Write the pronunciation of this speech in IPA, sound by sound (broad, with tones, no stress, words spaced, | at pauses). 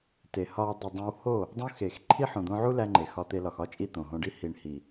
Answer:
te˨ hɒ˧w dˤu˨dˤæ̃˧who˦˨ | dˤõ˦xe˨x ǃʰi˦ ħõ˨d̪õ˧ʕu˦ læ˦ŋ͡ǃe˨xɒ˧t̪e˧ lɒ˨xɒ˦t͡ʃʼi˧ t̪õ˨ɦõ˧ɖi˦ hi˨ɳ hi˨